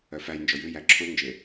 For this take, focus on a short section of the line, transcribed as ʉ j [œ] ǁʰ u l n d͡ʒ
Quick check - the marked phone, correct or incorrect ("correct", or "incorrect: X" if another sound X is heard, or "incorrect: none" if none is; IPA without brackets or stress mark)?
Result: incorrect: æ